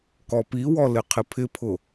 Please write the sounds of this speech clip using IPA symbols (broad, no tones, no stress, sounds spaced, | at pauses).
k ɔ p i w ɔ l ɪ qʰ ɪ pʰ ɪ pʰ ʊ